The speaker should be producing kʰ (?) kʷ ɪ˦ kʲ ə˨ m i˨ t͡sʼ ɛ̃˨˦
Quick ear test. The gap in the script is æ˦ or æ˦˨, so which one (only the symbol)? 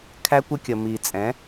æ˦